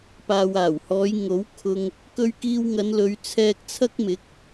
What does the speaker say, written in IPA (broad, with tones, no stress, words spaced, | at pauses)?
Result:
paː˨waː˨˩whɔː˨˧j ŋo˨˥wkʰʊ˧ŋ | kɵ˧ɥkiː˧wŋɐ˨˧nlɵ˨˧ɥ t͡sʰɛː˧k̚t͡sʰɐ˥k̚mɪ˨˥k̚